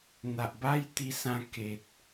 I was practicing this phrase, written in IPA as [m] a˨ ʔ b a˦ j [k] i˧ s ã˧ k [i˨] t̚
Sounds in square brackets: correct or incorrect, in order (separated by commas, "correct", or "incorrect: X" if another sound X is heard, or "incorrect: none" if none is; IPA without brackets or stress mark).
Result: incorrect: n̪, incorrect: t̪, incorrect: e˨